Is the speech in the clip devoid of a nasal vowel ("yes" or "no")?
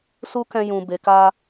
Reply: no